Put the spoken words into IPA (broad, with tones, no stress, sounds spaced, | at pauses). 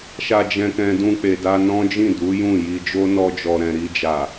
ʃ a˧ d͡ʒ ɛ̃˧ k ɛ̃˧ d ũ˧ k͡p e˨ d a˧ n ɔ̃˦ d͡ʒ ĩ˦˨ d u˨˦ j ũ˦˨ j i˧ d͡ʒ o˦ n ɔ˧ d͡ʒ ɔ˨ ɾ ɛ̃˨ ɾ i˧ d͡ʒ a˨